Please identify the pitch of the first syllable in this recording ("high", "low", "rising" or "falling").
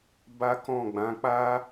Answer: high